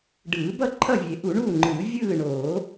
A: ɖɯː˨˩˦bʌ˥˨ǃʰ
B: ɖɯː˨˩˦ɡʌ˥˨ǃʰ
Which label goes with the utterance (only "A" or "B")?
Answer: A